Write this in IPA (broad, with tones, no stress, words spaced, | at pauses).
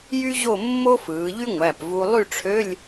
jy˥ʑo˥˧ mːo˥fɯː˩˧ʎy˥ ŋʷæ˩˧˩pvu˧ lˠy˥˧ʈ͡ʂʰø˧˥˧lʲ